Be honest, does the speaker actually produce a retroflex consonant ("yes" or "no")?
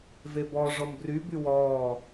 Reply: yes